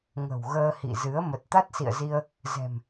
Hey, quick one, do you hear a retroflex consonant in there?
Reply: no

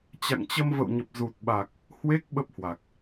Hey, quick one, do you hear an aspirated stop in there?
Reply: no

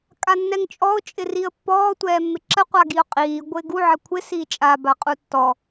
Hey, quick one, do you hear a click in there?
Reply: yes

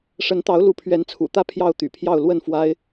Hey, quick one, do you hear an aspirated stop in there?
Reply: yes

